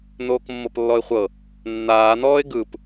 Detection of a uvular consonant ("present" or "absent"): present